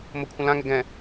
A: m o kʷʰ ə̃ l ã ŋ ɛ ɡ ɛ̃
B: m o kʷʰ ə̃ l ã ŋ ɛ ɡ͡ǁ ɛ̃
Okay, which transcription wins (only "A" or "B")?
A